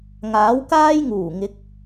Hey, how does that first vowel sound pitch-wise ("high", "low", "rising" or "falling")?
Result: rising